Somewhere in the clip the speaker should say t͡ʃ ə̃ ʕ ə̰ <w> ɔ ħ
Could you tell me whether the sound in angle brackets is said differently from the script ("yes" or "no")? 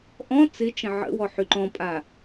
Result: no